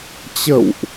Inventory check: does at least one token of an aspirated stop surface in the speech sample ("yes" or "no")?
no